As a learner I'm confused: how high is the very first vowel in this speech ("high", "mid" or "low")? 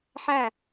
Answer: low